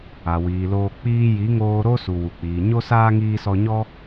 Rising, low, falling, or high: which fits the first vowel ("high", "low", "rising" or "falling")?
low